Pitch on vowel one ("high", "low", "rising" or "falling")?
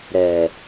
low